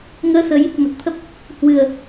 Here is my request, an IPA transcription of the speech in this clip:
ŋ əː˧ s ə˨˦ j | m ə˨˩ t̚ t̪ʰ ə˦˥ p̚ | h w ɨ˨˩ ə̯

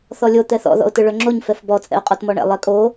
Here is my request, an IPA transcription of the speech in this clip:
θ ɔ lʲ o t̪ ɛ θ ɔ̰ ð ɔ̰ ʊ̯ t ɯ ɭ œ ŋ͡ǁ o ɲ f ɛ f b ɔ t͡sʼ ɛ̰ ʊ̯ qʼ ɔ t m ɔ ɳ ɛ̰ lˠ ɛ kʼ o

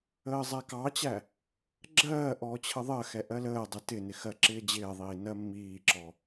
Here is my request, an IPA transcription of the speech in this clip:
əː zˤ æ k ɑ t͡ɕ æ | ɡ͡ǁ ɜː ʔ ɔː t͡ɕʰ ə ðˤ ɜ x ɛ ʔ ɜ l əː dˤ ɪ t ɪ n ɪ x ɜ ǁ ɪː d͡ʑ ɪː ðˤ iː n ɜ mː iː ǁ ɔ

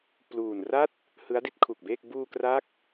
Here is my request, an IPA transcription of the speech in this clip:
p l uː˨˩ n r a˥˩ t̚ | h ɯ˦˥ a̯ d i˦˥ t̚ kʰ u˨˩ k̚ b eː˥˩ k̚ b uː˧ k r a˦˥ k̚

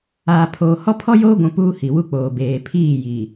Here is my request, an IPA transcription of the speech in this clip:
aː˨ pʰ oː˨ h ɔ˦ pʰ ɔ˦ j oː˦ ɡʷ ũ˨ p uː˦ h i˨ w u˦ k͡p oː˨ b eː˨ pʰ iː˦˨ j iː˨

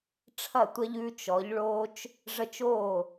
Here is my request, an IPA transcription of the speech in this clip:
ʈ͡ʂʰ ɐ˥˩ tʷ ɐ˦ ʎ ʉː˦ t͡ʃ ɔ˩˧ ʎ ɭ oː˦ t͡ʃ | ʐ ə˦ t͡ʃ oː˥˩

